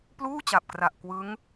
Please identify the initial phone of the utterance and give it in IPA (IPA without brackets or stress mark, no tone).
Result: p